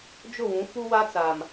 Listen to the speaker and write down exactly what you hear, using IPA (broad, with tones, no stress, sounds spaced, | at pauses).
d͡ʒ ʊ˦˨ w ũ˨˦ f u˦ w a˦ t͡s a˨ m